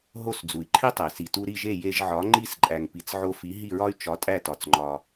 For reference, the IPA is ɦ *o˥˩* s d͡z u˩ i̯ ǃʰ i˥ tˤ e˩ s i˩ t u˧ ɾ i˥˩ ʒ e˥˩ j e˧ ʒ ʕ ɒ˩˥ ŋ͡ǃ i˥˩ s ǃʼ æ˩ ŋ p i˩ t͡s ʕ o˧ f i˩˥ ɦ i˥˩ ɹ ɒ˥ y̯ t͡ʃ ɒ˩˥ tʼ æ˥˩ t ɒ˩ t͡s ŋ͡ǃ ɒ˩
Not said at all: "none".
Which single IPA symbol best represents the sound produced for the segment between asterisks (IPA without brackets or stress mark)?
o˥˩